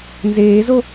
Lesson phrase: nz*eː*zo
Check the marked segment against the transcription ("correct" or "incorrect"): correct